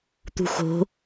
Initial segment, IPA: t̪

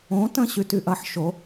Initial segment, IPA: õ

